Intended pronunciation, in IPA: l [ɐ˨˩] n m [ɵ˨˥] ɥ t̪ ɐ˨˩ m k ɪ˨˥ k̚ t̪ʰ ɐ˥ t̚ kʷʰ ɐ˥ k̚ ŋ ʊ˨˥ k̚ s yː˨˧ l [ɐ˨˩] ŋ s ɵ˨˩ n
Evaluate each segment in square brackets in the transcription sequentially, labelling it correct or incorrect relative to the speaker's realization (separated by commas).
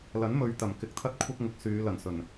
incorrect, incorrect, correct